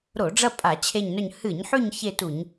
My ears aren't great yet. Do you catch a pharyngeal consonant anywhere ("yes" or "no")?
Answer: yes